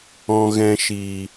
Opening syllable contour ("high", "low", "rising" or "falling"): low